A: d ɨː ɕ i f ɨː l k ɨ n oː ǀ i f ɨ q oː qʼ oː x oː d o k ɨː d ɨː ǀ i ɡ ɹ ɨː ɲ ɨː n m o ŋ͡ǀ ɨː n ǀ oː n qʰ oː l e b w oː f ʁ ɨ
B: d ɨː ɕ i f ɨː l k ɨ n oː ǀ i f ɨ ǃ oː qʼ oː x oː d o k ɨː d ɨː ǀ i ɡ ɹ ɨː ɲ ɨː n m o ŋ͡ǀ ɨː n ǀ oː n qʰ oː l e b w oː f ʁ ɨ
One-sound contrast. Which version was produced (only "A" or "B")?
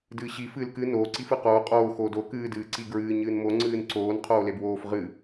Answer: A